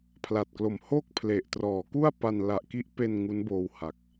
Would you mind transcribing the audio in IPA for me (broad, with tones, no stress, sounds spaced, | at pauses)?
pʰ l a˨˩ t̚ k l o˨˩ m h o˥˩ k̚ pʰ l e˨˩ ʔ t r ɔː˩˦ k u˥˩ a̯ p a˧ n l a˨˩ ʔ k i˦˥ ʔ p e˧ n ŋ u˦˥ n b oː˧ w h a˨˩ k̚